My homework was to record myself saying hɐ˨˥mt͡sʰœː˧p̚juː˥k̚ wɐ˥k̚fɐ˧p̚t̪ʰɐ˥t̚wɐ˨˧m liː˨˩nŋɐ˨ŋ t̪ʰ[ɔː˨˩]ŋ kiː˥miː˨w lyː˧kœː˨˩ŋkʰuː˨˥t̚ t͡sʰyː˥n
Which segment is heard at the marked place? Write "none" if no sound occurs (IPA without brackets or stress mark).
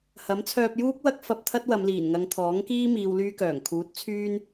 ɔː˨˥